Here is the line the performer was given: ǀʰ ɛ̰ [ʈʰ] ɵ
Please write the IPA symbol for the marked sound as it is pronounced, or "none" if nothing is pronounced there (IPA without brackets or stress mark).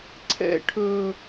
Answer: ʈʰ